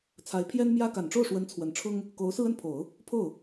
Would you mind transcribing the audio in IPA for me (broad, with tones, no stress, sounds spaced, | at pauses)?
t͡sʰ a˧˥ ɪ̯ pʰ j ɛ˥ n m j ä˥ k a˨˩ n ʈ͡ʂ o˥˩ ʊ̯ ʂ w ə˧˥ n t͡sʰ w ə˨˩ n ʈ͡ʂʰ ʊ˥ ŋ | k o˧˥ ʊ̯ s ɹ̩˥ ə˥˩ n pʰ o˨˩˦ ʊ̯ | pʰ o˥˩ ʊ̯